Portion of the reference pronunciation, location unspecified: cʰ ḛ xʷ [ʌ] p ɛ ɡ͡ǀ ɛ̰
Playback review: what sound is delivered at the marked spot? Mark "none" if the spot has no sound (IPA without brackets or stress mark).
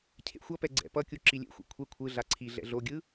ʌ